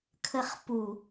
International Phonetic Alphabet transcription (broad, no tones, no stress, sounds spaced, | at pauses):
kʰ ə χ p u